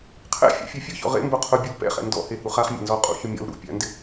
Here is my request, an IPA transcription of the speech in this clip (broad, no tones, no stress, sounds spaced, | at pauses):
qʰ ɛ̰ fʲ a̰ fʲ e fʲ ʊ ç ɔ̰ ʁ ḛ m b o qʰ ʊ bʲ u l p ɛ̰ χ ɛ̰ n d ɔ̰ h e h u χ a χ mʲ a̰ n z ɔ qʼ ṵ ç ʊ mʲ ɔ̰ l ɾ ṵ pʲ a̰ n d ɪ